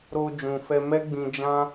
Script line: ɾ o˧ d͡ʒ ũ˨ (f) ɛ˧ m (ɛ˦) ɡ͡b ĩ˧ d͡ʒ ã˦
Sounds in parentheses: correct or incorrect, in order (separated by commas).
correct, correct